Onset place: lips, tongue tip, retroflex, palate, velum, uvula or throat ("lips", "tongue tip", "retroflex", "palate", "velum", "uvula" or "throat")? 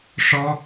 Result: retroflex